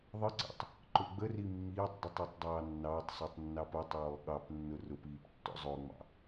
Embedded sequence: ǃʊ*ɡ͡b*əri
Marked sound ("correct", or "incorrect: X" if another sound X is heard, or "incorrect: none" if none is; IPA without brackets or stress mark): correct